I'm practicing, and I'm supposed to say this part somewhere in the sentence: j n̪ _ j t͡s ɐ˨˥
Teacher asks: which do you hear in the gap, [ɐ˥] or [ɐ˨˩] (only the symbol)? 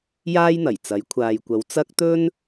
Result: ɐ˨˩